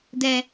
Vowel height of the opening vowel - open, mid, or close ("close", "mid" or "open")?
mid